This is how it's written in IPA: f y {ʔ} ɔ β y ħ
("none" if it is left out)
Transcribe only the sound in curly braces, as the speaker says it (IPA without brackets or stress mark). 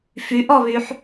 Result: ʔ